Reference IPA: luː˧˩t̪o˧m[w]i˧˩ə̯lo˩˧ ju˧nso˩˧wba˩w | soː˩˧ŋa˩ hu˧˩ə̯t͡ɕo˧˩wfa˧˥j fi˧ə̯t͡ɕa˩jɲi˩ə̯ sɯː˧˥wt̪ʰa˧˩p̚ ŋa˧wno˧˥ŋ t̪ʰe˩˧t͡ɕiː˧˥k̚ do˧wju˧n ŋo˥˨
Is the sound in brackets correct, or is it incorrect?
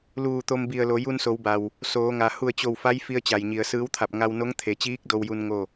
incorrect